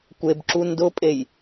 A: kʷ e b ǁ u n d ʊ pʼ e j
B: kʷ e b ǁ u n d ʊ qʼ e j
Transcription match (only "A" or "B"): A